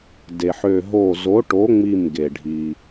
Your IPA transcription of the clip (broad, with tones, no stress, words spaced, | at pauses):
de˩ħø˧˩ ɦo˧˩zo˨˥ʈo˨˥ ŋ͡mi˧˩m ɡe˩ɖʱi˩